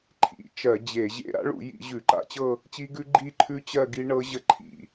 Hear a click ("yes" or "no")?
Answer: yes